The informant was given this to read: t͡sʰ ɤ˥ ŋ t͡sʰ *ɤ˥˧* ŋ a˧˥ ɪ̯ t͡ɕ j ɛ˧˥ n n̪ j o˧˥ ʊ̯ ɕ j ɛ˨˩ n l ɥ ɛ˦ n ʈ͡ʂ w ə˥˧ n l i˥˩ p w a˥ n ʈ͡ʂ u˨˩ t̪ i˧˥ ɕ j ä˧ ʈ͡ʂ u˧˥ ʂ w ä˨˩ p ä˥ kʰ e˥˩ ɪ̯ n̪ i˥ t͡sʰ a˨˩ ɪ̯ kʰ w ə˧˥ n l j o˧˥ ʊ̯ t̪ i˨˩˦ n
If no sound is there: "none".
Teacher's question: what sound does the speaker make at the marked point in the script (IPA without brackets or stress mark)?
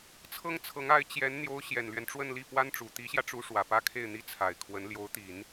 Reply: ɤ˧˥